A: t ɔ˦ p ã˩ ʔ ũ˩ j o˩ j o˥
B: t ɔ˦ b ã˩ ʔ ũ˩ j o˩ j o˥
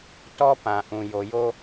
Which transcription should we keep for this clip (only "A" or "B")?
A